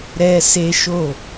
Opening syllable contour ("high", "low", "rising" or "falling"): high